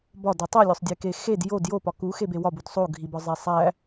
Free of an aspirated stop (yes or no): yes